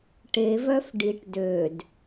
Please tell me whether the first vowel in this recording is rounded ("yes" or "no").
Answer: no